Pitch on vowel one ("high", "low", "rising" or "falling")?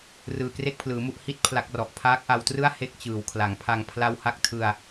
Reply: low